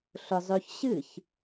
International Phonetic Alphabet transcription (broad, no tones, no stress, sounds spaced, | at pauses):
ɬ ʊ zˤ ø ç ɕ ɨ ç